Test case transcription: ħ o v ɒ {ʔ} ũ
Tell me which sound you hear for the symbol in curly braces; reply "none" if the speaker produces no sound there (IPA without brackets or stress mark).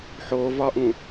ʔ